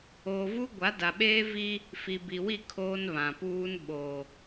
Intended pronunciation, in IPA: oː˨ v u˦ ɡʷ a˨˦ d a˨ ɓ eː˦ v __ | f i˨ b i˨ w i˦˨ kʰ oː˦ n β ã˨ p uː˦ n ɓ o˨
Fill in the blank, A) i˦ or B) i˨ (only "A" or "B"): A